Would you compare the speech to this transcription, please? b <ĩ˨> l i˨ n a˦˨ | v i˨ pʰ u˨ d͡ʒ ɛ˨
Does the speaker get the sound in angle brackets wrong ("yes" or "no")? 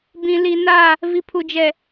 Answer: no